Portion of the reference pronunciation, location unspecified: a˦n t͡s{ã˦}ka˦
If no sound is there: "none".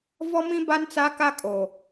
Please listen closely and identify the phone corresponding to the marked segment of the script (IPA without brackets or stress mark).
a˦